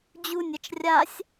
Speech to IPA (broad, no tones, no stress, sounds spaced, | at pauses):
d͡ʑ u nʲ ɐ t͡ʃ rʲ a sʲ